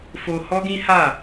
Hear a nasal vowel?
yes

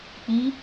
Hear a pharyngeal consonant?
no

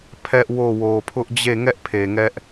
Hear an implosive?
no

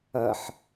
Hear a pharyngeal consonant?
yes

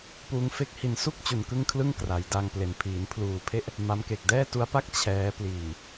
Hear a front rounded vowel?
no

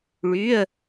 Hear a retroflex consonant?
yes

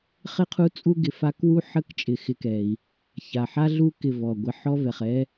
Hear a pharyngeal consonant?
yes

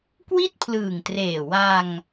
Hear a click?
no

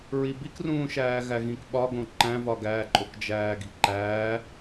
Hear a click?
yes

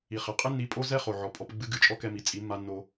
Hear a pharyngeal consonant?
yes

